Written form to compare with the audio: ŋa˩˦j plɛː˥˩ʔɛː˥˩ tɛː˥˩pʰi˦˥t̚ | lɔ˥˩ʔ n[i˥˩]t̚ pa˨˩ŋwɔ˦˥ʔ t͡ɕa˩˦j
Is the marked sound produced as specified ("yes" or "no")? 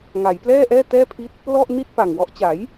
yes